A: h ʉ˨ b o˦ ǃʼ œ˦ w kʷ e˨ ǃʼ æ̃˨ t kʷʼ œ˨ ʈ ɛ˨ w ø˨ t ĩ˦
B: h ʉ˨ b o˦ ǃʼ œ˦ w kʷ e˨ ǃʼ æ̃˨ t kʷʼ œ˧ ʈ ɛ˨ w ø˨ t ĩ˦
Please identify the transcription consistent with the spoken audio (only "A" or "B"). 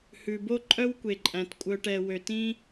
B